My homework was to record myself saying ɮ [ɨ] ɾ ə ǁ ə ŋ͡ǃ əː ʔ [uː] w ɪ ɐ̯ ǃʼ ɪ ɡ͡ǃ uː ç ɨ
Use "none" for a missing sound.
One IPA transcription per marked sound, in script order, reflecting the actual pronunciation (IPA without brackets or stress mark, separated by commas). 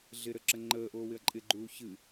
ɪ, oː